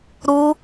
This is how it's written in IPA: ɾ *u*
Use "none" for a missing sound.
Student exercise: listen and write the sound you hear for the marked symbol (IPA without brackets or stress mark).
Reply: u